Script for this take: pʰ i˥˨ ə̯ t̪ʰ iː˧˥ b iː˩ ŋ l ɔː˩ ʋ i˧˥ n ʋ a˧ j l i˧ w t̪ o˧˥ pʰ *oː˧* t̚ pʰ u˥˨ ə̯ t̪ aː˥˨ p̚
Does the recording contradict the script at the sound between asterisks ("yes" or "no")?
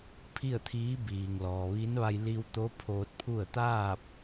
no